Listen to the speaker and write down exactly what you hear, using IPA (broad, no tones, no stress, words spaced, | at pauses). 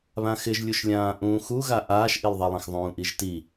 βãxɪʒlʲuʃlʲãː ʔũːxuɣa ʔaːʃʔilˠðˤilˠãx ðˤũːʔiʒti